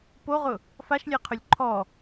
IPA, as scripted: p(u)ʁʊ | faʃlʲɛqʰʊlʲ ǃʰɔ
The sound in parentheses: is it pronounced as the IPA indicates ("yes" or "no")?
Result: no